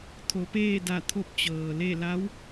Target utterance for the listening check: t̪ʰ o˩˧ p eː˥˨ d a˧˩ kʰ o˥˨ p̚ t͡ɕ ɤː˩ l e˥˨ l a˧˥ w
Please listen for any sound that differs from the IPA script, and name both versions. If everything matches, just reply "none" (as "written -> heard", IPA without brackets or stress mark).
kʰ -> t̪ʰ